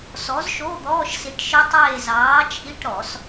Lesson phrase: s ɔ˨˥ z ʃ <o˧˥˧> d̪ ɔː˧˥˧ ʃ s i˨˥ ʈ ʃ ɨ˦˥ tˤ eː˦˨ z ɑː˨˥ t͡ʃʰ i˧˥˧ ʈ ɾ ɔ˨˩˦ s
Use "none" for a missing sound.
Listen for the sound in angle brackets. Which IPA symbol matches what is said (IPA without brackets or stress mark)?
o˧˥˧